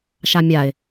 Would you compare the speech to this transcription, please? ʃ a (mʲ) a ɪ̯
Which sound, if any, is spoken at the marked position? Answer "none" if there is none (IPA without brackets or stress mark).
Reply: mʲ